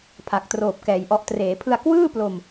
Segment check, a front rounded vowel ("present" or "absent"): absent